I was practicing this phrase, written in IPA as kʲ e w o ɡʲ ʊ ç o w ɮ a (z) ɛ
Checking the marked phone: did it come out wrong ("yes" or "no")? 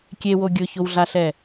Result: yes